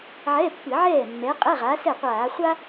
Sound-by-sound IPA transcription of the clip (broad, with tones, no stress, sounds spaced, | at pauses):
ʕ ɛ˧˥˧ pː ɨ˧˩˧ ʕ ɛː˥˩ mː ɛ˨˥ qʼ ɛ˧˥˧ ʁ a˨˥ s ɛ˥˩ qʷ aː˧˩˧ χʷ a˥